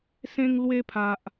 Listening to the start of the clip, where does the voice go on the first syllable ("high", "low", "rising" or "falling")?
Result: high